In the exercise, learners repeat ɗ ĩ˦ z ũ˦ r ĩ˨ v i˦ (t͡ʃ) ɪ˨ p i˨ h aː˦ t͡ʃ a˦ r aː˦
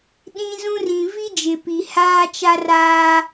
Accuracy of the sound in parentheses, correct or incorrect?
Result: incorrect